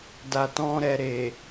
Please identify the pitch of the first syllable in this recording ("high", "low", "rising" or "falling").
low